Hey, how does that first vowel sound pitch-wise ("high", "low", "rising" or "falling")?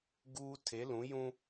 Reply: high